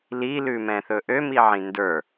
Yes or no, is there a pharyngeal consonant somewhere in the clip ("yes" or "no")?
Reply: yes